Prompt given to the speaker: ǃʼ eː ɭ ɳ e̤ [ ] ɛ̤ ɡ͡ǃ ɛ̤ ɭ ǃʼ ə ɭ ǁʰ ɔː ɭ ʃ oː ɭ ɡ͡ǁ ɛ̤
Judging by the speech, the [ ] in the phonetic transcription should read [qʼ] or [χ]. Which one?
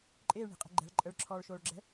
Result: qʼ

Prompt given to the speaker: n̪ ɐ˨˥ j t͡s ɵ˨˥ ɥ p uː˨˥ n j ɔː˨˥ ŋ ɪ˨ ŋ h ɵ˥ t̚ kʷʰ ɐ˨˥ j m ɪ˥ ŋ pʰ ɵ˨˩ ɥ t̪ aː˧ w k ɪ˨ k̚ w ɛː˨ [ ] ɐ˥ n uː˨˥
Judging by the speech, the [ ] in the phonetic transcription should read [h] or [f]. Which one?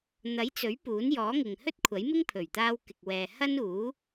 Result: h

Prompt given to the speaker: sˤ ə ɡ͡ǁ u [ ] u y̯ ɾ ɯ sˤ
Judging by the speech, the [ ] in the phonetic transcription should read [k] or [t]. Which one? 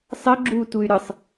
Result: t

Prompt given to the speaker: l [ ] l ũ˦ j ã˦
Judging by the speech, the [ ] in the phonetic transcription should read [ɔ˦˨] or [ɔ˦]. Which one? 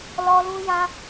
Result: ɔ˦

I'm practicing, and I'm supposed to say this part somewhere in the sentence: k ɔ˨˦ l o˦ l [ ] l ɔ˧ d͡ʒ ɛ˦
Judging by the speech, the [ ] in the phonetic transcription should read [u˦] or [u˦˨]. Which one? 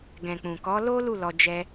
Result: u˦˨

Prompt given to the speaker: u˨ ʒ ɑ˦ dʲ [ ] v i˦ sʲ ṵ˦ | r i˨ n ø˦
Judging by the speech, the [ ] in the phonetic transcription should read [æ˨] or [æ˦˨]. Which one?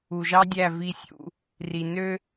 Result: æ˦˨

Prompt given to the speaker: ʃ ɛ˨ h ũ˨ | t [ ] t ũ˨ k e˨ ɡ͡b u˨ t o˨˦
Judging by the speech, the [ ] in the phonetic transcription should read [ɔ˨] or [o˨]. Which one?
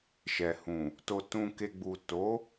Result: o˨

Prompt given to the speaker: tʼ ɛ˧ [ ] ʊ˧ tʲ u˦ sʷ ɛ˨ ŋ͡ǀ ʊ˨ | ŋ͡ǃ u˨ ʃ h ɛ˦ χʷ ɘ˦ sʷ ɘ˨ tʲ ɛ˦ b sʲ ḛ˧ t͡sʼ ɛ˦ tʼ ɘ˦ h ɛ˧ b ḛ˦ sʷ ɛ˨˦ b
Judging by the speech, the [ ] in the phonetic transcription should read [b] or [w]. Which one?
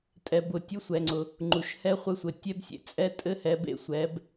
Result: b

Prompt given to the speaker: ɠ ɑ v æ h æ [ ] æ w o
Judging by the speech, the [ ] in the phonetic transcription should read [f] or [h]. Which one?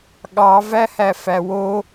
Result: f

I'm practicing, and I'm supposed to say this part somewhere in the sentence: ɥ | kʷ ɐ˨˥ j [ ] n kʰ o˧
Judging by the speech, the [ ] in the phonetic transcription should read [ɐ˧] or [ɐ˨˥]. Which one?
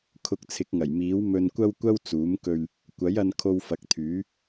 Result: ɐ˧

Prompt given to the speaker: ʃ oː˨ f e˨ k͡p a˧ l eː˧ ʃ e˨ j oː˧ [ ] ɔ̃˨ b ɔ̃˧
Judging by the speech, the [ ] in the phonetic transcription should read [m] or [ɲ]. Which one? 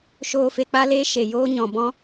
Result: ɲ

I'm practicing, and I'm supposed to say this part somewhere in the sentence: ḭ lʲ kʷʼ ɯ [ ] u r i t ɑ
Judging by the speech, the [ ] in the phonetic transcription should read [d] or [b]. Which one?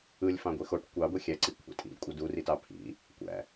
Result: d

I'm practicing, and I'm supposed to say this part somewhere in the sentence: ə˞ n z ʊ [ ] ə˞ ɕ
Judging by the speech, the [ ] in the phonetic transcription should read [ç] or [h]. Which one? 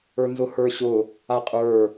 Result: h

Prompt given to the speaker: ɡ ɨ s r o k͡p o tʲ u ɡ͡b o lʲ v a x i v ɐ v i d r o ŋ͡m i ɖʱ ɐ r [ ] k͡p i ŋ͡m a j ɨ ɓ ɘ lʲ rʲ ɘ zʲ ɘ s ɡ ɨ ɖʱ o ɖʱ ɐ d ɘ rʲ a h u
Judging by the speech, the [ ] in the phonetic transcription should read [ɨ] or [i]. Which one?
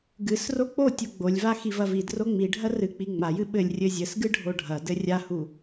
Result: ɨ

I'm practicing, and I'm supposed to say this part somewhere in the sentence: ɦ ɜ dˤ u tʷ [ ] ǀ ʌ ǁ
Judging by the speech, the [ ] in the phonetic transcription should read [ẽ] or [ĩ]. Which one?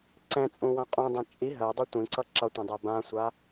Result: ĩ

